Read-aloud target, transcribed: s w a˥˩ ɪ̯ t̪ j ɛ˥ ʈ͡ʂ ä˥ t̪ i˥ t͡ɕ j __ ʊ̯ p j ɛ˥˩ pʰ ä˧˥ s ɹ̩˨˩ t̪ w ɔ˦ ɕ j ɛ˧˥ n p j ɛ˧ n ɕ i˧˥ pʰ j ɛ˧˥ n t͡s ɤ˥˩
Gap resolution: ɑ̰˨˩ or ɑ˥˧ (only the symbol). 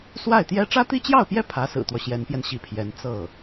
ɑ˥˧